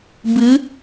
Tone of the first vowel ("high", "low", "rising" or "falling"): rising